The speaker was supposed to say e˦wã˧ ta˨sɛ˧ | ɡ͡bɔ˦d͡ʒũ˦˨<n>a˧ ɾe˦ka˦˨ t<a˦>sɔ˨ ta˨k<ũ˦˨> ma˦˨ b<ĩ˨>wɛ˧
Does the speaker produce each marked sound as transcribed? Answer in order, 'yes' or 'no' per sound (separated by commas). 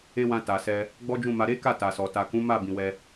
no, no, no, yes